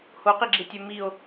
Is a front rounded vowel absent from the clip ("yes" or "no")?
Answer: no